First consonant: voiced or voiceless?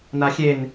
voiced